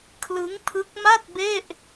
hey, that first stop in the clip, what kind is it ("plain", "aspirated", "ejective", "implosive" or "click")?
aspirated